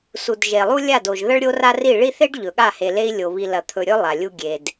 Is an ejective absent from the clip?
yes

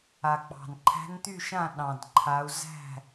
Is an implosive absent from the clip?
no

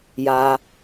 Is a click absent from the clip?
yes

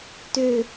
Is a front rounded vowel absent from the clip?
no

